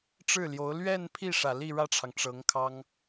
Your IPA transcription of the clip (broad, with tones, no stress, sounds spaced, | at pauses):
ʈ͡ʂ ɻ̩˥˩ l j o˧˥ ʊ̯ l ɥ ɛ˥˧ n pʰ i˥˩ ʂ ä˨˩ l i˥˧ ɻ ä˥˩ ʈ͡ʂʰ ɑ˩ ŋ ʈ͡ʂ ɤ˧˥ ŋ kʰ ɑ˥ ŋ